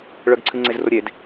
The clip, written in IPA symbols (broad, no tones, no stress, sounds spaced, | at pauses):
ɭ œ ɡ ǀʰ ɨ ŋ͡ǀ e z r o ɾʲ e d